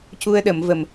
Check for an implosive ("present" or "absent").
present